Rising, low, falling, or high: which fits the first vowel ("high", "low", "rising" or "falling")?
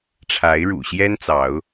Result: rising